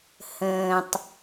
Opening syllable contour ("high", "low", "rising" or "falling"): low